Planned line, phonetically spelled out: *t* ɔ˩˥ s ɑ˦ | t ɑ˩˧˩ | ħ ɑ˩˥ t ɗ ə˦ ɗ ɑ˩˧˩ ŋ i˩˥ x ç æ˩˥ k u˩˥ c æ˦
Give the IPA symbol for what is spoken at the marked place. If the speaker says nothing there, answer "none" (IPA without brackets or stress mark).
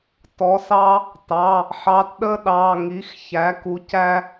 t